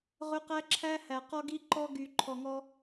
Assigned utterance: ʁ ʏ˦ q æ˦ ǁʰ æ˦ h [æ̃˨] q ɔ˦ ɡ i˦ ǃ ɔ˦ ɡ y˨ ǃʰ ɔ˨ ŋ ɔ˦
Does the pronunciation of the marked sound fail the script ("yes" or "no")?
yes